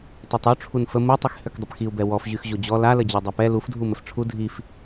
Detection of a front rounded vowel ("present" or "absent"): present